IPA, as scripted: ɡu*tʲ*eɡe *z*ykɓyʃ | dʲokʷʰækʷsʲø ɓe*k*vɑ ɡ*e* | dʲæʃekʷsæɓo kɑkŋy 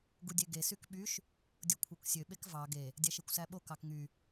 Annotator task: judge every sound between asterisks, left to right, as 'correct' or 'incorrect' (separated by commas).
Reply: incorrect, incorrect, correct, correct